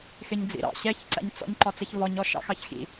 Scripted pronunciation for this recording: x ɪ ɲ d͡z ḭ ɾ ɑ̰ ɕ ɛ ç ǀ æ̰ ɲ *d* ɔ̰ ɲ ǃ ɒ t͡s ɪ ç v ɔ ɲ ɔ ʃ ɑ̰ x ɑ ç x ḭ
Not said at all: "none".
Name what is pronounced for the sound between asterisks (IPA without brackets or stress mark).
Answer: t͡s